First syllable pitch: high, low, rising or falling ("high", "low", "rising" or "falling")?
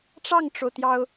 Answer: falling